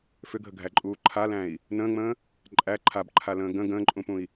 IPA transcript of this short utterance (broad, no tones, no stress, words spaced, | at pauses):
fʏɡʱəɡʱæǃʼuː ǃʰalæ̃i̯ | nə̃ːŋ͡mə̃ː | ǃʼæ ǃʰabǃʰalə̃ː ɡə̃ ɡə̃ːǃʼũpũi̯